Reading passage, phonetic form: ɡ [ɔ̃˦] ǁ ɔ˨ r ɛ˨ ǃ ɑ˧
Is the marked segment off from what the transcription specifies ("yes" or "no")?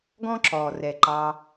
no